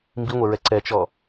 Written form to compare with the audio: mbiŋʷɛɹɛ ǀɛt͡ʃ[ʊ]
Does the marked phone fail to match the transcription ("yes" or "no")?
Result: yes